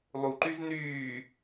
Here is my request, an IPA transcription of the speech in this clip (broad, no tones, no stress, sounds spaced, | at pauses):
lˠ u ǃ y z n yː